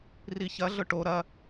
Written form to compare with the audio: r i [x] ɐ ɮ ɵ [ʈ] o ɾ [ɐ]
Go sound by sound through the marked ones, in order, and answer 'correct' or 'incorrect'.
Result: incorrect: ç, correct, correct

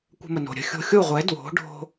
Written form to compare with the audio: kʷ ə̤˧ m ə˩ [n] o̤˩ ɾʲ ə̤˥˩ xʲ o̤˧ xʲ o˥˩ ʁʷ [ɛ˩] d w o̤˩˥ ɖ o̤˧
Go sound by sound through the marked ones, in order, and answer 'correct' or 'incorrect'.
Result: correct, incorrect: ɛ˩˥

